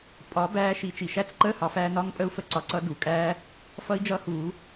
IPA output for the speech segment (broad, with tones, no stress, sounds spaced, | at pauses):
pʼ ɒ˨˩˦ b æː˧ ʃ i˨˩˦ t͡ʃ i˩ ʃ æ˦˥ t͡s ǃ əː˧˥˧ h ɑ˨˩˦ f æː˧ n ɒ˧˥˧ ŋ pʼ ə˦˥ u̯ f ə˧ ǀ ɒ˧ ǀ ʌ˦˥ d u˩ kʼ æː˦˥ | f ʌ˦˥ i̯ d͡ʒ ʌ˦˥ h uː˨˩˦